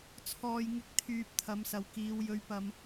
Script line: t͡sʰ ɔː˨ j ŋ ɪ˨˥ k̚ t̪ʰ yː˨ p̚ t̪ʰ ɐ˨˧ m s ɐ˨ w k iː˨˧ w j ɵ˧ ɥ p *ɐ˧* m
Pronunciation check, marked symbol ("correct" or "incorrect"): correct